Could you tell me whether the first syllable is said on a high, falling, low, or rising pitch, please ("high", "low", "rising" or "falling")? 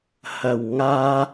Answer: low